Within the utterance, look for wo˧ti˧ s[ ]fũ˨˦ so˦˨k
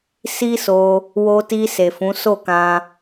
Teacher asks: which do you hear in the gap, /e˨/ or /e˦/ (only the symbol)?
e˨